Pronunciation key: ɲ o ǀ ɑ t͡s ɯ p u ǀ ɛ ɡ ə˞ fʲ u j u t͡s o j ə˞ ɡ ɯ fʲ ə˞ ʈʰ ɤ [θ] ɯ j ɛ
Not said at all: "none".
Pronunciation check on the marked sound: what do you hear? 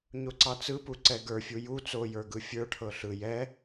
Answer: ɬ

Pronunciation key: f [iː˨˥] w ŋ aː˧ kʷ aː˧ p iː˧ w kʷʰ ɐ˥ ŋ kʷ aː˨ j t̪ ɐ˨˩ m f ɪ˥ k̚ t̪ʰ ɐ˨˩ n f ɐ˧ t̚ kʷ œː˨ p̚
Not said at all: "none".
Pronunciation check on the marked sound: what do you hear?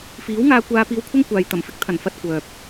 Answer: iː˨˥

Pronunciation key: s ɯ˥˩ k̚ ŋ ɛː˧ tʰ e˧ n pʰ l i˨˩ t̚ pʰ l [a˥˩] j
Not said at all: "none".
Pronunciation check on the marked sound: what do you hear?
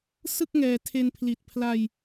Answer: a˧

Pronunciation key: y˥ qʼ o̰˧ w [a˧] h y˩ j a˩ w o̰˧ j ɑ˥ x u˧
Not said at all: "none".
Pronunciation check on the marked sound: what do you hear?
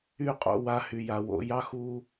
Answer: a˧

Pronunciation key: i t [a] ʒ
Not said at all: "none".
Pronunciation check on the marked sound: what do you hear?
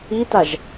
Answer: a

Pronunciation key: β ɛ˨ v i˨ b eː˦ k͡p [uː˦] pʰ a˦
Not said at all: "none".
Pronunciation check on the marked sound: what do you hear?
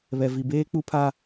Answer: u˦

